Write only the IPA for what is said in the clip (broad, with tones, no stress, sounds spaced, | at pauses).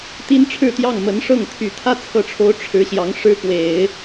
t̪ i˥ n ʈ͡ʂʰ ɻ̩˥˧ t̪ j ɑ˥˩ ŋ m ə˧˥ n ʂ ɤ˥˩ ŋ t̪ʰ y˨˩ t̪ʰ ä˥˧ t͡sʰ ɤ˥˩ ʈ͡ʂʰ o˥ ʊ̯ ʈ͡ʂʰ ɻ̩˧˥ ɕ j ɑ˧˥ ŋ ʂ ɻ̩˥ k w e˨˩˦ ɪ̯